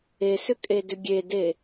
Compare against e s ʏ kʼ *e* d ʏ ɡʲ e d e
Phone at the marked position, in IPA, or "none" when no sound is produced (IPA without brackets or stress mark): e